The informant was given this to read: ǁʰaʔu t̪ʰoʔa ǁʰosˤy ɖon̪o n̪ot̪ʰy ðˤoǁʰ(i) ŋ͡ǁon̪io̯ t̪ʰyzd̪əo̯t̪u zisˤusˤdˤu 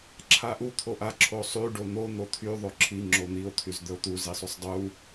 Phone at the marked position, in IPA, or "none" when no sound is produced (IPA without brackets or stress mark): i